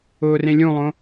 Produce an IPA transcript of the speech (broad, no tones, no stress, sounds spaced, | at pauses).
ʊː r ẽ lʲ ũ lˠ õ